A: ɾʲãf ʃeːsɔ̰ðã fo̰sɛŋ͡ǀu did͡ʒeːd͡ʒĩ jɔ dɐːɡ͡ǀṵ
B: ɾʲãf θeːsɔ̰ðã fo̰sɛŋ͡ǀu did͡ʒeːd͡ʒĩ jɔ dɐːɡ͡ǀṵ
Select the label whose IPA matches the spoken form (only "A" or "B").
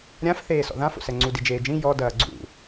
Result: B